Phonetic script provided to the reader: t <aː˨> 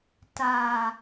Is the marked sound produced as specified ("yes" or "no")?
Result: yes